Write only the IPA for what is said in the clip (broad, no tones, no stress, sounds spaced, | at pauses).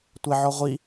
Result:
tʷ ɛ ʕ ɔ ʁʷ i